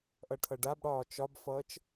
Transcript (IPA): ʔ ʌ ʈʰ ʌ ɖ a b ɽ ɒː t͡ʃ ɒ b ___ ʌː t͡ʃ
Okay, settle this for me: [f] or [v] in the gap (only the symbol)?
f